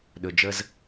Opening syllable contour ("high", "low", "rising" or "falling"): low